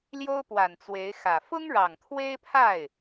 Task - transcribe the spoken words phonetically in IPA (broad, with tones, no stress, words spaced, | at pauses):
ljo˥ʊ̯pwa˨˩nt͡swe˧˥ɪ̯xä˨˩ fʊ˥ŋɻɑ˨˩ŋt̪ʰwe˥ɪ̯pʰa˥˩ɪ̯